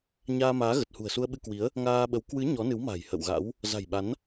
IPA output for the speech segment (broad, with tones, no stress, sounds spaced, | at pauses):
ɲ aː˧ m aː˨˦ ɣ ə˨˩ t̚ h ṳ˨˩ ə̯ s u˧ ə̯ ɓ ɨ˧ k w i˨˦ ə̯ | ŋ aː˧ ɓ ə˨˦ w k w ɨ˨˦ ɲ ɔ˨˦ n ɨ˨˦ w m a̤˨˩ j h ə̰˧˨ w ɣ a̰˧˥ w | z a̤˨˩ j ɓ a˨˦ n